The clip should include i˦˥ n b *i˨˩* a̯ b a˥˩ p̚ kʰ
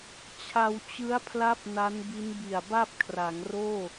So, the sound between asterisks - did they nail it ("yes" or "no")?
yes